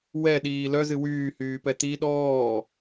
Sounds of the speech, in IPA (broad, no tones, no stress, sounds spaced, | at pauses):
w ɛ ɗ iː l œ z ɨ w yː h yː p ɛ t̪ i ɗ ɔː